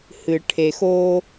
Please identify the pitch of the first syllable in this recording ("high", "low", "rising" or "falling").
low